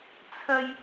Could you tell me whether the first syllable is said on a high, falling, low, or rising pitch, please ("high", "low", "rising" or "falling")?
high